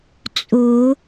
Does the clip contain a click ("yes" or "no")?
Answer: no